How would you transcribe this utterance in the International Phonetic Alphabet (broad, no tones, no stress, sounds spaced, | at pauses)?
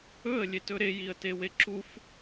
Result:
ɵ ə̯ lʲ e t ɵ ɾ e j i ə̯ t e w e ǁ u f